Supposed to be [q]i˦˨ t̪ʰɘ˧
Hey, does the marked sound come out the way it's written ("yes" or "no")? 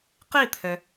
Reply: yes